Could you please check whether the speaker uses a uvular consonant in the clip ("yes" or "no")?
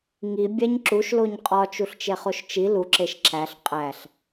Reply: yes